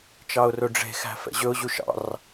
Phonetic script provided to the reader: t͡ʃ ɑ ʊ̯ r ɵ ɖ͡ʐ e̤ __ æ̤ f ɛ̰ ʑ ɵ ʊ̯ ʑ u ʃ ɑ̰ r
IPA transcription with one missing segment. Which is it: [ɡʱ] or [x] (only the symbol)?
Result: x